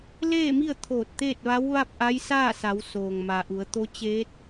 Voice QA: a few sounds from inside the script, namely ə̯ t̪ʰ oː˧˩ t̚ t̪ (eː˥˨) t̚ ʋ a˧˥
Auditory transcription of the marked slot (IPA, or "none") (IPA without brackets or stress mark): eː˥˨